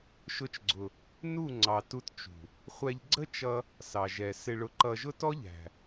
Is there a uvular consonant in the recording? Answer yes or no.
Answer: yes